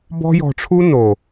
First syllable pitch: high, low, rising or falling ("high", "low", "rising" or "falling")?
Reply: high